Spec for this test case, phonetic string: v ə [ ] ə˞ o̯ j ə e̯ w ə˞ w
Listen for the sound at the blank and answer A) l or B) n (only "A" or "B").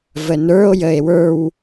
B